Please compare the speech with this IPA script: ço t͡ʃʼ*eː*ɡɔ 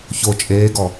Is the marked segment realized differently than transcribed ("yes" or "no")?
no